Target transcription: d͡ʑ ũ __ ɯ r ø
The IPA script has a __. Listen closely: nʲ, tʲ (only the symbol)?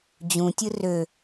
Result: tʲ